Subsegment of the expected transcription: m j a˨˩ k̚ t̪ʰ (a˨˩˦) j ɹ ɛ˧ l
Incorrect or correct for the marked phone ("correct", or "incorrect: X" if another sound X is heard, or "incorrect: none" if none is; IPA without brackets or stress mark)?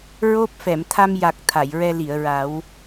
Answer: incorrect: a˨˩˨